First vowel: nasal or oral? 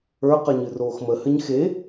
oral